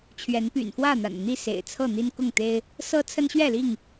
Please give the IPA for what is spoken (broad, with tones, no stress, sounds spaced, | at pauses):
t͡ɕʰ ɥ ɛ˨˦ n p y̰˨˩ n f w ä˥˨ n̪ a̰˨˩ n n̪ i˥˨ s ḛ˨˩ ɪ̯ t͡sʰ ɤ˥˨ n̪ i˦ n k ʊ˥˨ ŋ t̪ e˦ ɪ̯ | s ɤ˦ t͡sʰ ə˦ n ɕ ɥ ɛ˥˨ l i˥˨ ŋ